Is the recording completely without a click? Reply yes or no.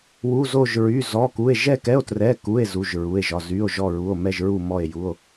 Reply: yes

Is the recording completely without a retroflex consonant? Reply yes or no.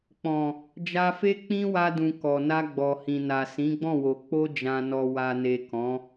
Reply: yes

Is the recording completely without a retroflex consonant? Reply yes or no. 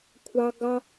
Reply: yes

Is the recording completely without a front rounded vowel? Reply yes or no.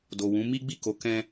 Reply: yes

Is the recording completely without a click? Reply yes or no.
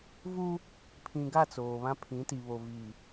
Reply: yes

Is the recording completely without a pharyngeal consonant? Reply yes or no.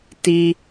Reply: yes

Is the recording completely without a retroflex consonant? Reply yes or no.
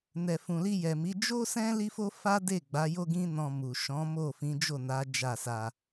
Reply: yes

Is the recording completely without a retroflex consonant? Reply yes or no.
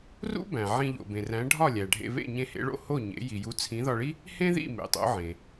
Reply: no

